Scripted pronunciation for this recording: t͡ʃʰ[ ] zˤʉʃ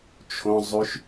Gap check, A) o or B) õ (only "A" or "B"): B